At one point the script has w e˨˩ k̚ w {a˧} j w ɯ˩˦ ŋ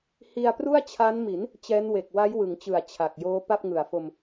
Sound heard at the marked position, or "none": a˦˥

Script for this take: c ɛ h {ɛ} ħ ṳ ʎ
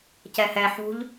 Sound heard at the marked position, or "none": ɛ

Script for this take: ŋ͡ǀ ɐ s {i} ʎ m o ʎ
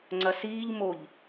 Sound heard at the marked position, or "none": iː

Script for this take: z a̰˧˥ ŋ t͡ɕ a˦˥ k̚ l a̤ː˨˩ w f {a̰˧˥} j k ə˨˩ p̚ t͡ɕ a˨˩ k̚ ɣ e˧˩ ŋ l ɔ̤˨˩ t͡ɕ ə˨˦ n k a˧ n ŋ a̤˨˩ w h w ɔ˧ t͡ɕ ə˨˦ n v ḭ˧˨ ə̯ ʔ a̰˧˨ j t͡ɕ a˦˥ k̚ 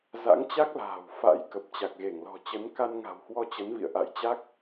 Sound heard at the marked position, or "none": a̰˧˥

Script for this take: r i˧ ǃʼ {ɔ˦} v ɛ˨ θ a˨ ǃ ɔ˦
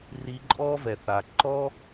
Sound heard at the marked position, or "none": ɔ˦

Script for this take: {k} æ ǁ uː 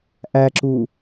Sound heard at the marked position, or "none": ʔ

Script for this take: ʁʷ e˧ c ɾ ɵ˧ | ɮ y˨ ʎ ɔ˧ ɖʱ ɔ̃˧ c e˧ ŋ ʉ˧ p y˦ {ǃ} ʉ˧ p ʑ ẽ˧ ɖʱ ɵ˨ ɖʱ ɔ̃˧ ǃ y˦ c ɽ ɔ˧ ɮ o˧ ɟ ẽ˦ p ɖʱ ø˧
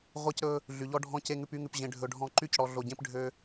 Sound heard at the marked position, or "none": ŋ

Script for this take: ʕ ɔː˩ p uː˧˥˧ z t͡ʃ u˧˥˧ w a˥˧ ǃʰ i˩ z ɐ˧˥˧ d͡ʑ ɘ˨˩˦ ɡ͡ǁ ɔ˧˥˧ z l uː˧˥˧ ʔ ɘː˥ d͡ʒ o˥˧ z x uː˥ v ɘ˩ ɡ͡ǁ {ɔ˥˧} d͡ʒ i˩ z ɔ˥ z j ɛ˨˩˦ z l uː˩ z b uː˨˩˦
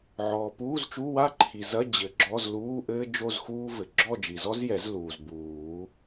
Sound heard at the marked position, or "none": ɔ˥˧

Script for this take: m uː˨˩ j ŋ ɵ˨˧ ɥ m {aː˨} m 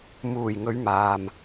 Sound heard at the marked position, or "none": aː˨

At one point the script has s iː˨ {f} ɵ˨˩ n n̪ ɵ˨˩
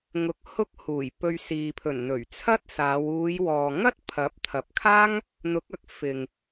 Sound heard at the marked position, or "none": pʰ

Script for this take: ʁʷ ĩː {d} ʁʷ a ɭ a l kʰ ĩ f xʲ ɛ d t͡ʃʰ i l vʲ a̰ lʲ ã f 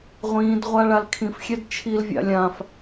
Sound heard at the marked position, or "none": d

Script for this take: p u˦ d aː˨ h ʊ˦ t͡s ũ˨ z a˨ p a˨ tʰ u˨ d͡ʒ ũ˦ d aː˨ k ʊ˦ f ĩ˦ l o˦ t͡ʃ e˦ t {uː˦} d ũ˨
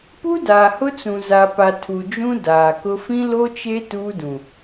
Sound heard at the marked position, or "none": uː˦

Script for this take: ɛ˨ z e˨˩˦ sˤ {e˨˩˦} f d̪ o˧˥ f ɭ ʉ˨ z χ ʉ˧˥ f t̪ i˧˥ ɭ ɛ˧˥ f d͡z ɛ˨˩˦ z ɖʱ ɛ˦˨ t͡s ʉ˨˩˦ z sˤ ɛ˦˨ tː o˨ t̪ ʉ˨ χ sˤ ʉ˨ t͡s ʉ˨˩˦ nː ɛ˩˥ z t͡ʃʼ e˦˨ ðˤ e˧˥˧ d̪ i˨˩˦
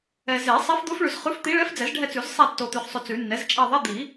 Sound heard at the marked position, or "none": e˧˥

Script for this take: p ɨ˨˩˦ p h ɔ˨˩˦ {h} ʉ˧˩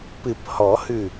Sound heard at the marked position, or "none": h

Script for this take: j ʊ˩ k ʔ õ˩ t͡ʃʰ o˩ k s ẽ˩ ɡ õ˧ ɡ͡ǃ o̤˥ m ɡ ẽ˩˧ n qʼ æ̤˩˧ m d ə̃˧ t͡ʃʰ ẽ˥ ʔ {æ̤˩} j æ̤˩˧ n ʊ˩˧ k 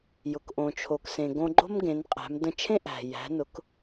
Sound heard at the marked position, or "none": æ̤˩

